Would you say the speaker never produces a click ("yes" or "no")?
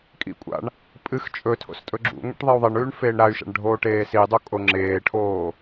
no